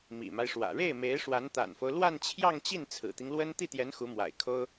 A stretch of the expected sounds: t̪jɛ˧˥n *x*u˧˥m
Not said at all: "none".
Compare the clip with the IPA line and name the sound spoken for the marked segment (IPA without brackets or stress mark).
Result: x